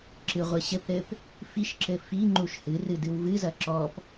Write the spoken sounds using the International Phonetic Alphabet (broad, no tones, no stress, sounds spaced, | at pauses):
ǁ ɨ ʁʷ ɨ ɕ ɘ p ɾ ɘ p | f i ʃ ǁ ɘ f i ŋ͡ǃ u ʃ h ɨ r ɨ d ɨ w v ɨ z ɐ ǁ ɔ p